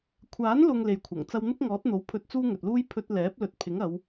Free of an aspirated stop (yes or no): no